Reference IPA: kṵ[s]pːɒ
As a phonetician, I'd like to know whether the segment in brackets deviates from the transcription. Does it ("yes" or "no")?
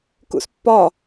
no